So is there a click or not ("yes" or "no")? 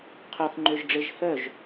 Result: yes